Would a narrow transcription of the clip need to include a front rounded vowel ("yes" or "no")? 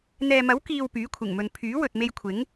yes